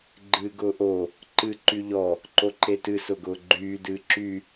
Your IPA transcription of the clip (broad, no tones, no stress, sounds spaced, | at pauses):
ɡ͡ǃ ɨː ɡ ʊː ʔ o | ǃ ɨ ǃ y ʎ ɔ | ǃ o ǃ e t ɨ s ʊ ɡ ʊː ɡ͡ǃ yː d ɨː ǁ y